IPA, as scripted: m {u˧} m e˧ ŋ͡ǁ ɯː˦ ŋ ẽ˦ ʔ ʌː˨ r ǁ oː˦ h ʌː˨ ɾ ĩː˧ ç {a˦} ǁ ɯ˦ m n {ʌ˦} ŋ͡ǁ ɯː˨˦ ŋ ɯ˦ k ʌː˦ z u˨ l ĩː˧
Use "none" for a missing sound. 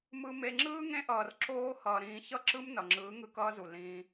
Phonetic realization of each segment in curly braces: ɯ˧, ʌ˦, ʌ˨

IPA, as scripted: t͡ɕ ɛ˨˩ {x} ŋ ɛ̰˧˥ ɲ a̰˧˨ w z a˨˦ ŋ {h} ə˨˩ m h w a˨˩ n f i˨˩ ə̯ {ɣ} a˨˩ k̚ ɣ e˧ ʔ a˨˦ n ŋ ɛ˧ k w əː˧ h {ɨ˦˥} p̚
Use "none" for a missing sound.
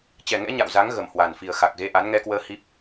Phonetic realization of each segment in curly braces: none, ɣ, x, i˦˥

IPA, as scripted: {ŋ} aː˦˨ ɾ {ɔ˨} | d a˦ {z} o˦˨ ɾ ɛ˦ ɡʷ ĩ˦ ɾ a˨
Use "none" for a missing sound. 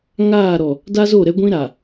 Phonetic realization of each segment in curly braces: ŋ, ɔ˨, z

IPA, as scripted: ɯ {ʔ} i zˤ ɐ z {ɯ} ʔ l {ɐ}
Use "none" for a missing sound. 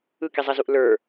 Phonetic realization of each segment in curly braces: k, u, ə˞

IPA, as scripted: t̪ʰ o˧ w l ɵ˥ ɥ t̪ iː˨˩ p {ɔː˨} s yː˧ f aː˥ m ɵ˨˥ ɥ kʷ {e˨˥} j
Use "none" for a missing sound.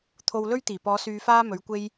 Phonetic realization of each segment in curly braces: ɔː˨˧, e˥

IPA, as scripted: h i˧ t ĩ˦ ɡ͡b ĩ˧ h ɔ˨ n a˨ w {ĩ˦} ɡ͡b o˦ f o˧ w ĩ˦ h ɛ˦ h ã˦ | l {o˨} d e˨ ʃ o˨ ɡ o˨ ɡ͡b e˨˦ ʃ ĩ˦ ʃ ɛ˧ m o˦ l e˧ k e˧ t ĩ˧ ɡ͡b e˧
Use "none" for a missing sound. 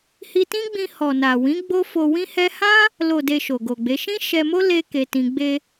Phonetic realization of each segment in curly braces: ĩ˨˦, o˨

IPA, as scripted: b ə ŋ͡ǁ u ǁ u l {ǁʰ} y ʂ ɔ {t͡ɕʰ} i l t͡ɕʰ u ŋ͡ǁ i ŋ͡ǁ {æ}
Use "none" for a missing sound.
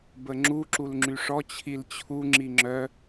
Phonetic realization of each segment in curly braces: ŋ͡ǁ, t͡ɕʰ, œ

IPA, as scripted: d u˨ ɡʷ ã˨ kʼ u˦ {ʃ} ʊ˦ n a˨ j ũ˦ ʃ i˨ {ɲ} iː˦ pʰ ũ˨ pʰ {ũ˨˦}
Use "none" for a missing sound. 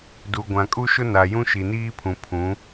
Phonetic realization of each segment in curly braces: ʃ, n, ũ˨˦

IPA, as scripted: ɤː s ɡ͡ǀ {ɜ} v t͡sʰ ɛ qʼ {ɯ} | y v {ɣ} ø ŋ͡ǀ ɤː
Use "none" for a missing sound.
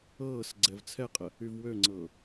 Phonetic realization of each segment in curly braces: ɛ, ə, w

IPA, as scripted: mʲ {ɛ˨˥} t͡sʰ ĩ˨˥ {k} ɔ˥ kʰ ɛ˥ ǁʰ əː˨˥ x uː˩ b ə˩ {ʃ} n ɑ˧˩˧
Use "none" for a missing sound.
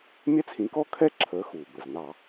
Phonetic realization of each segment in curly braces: ɛ˥, k, z

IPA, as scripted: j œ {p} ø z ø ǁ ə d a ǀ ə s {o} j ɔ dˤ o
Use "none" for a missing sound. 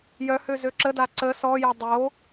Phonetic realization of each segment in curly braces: h, ɔ

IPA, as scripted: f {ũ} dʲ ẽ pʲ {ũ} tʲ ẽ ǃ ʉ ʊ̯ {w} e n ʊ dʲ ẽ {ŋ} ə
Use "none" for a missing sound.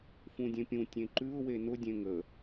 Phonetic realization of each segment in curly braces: ũ, ũ, w, ŋ

